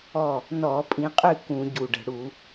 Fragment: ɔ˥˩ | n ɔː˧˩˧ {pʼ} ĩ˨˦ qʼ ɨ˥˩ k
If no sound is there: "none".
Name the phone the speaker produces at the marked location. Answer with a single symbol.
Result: pʼ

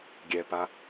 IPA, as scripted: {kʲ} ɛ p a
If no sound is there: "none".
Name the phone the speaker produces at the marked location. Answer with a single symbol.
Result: ɡʲ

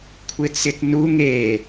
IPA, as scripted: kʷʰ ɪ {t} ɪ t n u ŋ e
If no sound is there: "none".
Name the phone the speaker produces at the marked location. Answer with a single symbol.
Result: t͡s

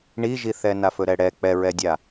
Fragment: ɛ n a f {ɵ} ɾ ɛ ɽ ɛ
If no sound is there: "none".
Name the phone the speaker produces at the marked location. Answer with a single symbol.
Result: ɵ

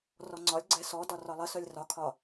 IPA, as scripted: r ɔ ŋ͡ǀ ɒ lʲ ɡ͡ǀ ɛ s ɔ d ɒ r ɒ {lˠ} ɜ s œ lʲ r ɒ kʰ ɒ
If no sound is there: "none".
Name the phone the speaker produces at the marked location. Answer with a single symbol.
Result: lˠ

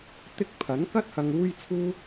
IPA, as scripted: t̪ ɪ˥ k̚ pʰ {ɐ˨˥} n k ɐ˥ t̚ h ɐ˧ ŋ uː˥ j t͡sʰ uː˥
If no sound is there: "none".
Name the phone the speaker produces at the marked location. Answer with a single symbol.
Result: ɐ˨˥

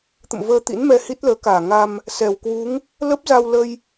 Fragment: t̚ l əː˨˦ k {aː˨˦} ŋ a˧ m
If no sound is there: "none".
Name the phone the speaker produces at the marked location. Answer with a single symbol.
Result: aː˧˩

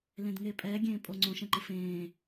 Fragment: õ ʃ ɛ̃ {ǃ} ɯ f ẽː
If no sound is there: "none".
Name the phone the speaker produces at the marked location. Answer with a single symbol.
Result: ǃ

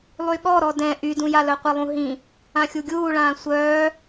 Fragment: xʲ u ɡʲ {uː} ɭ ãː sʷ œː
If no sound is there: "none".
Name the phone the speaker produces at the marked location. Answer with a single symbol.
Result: uː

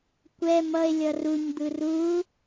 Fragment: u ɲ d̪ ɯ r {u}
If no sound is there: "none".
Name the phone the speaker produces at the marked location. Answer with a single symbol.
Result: u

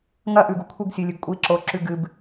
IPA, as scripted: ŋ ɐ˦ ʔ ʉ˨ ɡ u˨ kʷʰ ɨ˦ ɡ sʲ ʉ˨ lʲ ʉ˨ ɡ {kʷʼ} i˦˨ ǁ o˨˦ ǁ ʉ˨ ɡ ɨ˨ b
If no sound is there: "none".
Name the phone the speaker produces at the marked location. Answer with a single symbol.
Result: kʷʼ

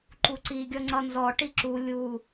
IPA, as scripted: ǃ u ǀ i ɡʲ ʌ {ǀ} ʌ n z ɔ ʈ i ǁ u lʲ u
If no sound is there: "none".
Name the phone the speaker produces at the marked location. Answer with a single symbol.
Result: ŋ͡ǀ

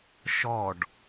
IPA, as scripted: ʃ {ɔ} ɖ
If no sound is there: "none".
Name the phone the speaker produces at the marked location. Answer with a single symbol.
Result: ɔ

